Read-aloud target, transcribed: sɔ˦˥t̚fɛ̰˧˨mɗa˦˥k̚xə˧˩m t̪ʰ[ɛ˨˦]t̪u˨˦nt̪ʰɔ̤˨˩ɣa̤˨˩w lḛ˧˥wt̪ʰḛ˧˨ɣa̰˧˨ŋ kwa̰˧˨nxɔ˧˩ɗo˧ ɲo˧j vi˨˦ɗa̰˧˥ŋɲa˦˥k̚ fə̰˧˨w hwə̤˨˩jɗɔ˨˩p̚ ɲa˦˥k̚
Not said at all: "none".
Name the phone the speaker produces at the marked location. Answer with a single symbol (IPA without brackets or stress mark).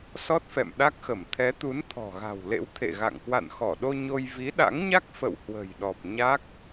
ɛ˨˦